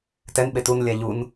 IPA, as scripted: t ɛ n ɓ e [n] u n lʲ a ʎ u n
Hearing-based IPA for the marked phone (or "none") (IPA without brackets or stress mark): t